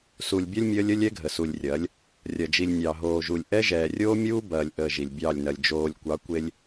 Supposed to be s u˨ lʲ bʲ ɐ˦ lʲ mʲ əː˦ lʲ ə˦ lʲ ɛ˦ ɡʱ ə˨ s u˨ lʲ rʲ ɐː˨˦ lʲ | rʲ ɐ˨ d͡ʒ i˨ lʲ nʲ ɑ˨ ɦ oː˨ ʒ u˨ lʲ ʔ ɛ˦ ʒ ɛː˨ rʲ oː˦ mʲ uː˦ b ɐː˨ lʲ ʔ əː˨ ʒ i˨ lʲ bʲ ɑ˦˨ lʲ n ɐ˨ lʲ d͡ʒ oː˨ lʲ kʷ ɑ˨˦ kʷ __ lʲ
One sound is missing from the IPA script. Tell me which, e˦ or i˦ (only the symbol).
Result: e˦